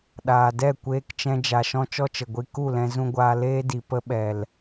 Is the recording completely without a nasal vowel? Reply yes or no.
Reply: no